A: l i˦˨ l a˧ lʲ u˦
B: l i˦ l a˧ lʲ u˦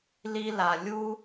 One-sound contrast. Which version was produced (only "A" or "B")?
B